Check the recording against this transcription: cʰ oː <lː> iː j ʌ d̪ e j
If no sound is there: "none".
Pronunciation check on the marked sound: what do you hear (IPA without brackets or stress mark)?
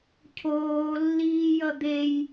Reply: lː